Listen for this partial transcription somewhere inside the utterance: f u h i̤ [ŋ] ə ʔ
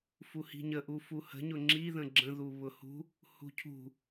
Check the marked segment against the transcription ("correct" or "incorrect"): incorrect